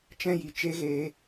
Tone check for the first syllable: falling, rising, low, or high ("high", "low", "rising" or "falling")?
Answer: high